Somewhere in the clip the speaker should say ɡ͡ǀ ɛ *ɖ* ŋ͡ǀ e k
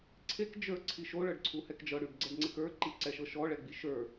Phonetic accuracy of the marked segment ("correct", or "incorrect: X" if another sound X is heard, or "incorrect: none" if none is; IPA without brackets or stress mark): correct